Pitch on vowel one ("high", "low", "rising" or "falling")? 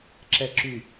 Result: low